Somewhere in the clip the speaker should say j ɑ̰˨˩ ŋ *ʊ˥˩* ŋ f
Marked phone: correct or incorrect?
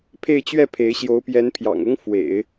incorrect